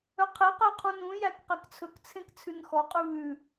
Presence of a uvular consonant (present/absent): present